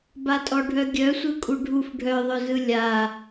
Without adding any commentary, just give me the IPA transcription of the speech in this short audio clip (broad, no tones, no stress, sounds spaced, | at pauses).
b a tʼ ɔ ɖʱ œ ɡʲ œ sʷ ɯ kʼ u ɖʱ u f ɖʱ œ ðˤ œ z ɯ lʲ a